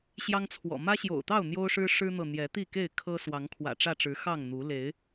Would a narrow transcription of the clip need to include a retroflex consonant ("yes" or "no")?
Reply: yes